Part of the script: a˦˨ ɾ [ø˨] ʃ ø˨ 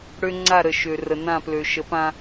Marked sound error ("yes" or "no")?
yes